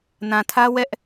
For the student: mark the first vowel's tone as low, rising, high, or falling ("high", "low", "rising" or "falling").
low